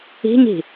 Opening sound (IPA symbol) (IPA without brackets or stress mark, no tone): i̤